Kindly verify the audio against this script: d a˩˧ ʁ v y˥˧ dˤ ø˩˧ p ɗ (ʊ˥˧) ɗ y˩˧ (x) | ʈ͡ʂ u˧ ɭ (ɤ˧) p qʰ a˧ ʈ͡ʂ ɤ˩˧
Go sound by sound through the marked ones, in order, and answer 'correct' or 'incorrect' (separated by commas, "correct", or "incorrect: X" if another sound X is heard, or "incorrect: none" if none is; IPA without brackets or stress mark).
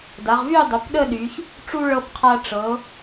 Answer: incorrect: ə˥˧, incorrect: ç, correct